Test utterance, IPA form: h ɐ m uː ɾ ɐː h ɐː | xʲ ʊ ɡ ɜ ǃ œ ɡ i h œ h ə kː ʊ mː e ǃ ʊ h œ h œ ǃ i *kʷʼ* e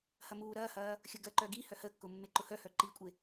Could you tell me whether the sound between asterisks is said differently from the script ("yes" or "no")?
no